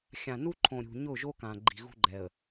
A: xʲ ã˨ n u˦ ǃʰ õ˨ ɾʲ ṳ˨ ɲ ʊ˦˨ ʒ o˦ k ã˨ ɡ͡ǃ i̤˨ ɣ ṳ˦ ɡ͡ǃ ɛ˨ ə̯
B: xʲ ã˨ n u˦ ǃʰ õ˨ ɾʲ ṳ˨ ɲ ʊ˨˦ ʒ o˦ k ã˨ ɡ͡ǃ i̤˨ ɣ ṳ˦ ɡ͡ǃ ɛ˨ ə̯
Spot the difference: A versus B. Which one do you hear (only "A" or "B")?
A